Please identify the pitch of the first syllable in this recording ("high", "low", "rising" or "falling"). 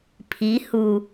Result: rising